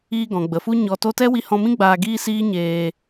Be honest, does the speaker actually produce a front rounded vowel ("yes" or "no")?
no